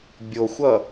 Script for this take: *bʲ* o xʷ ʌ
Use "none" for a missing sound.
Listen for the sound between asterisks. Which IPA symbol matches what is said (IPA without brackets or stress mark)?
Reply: bʲ